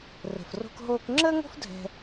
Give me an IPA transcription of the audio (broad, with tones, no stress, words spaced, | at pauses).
rə̤˩fro̤˧kɦoː˧k ŋ͡ǁəː˥ŋo̤˥f dʱɛ̤˧